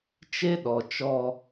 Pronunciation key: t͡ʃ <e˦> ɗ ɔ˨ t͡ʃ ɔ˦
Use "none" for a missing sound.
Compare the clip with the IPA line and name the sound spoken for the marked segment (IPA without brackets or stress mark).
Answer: e˦